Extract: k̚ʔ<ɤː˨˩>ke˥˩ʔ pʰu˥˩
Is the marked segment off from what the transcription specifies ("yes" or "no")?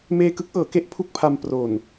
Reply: yes